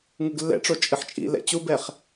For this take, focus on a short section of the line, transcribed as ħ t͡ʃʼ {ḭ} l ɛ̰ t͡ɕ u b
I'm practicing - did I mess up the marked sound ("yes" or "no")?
no